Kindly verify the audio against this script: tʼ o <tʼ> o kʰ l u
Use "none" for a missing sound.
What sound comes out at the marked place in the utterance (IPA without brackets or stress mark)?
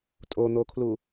n̪